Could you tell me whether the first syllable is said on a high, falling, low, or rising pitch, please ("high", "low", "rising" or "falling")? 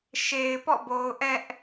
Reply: low